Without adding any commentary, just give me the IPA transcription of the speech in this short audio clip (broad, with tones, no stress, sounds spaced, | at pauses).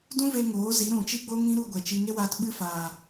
d ũ˦ v e˧ ŋ oː˨˦ z i˨˦ ɾ ũ˨ t͡ʃ i˧ ɡ͡b o˧ ŋ ĩ˦ ɾ u˧ ɡʷ ɛ˨ t͡ʃ i˧ ŋ e˦ w aː˧ t ɓ ɨ˦ f aː˨